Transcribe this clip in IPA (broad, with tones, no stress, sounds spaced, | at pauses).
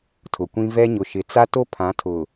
tʰ ʊ˨ kʷ ĩ˦ v ɛ˦ ɲ ʊ˨ ʃ ɪ˨ t͡s a˦ t o˦ pʰ ã˨˦ tʰ ʊ˨